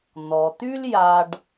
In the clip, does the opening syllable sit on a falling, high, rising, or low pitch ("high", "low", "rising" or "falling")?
low